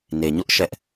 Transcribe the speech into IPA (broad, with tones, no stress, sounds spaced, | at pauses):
n e˨ ɲ ʊ˦ ʔ ʃ ɛ˦ ʔ